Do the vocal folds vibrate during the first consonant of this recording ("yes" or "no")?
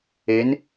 yes